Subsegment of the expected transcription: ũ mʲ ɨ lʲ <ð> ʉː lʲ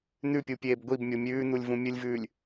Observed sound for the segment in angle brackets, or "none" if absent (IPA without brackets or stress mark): v